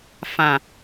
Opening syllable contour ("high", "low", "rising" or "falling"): low